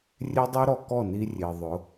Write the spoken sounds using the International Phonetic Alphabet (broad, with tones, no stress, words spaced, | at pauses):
rʲe˦dˤu˦ɾɔ˧ kɔ˦˨ni˧rʲe˨ ðˤʊ˨˦